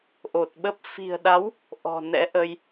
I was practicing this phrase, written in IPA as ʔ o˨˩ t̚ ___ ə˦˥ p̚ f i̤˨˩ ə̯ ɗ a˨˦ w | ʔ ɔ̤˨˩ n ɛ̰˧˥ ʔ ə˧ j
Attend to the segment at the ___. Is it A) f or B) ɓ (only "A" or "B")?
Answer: B